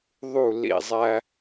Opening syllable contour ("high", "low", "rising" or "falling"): falling